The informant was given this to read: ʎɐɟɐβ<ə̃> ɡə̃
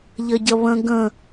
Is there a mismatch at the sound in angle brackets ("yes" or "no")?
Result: no